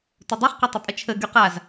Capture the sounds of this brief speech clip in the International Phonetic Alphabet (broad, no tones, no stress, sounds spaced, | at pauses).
t ʊ dˤ i χ q ɐ tˤ ʊ pʼ ə t͡ʃʰ ə ɡ y q a z